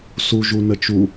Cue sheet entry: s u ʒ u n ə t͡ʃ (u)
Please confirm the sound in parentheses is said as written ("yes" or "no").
yes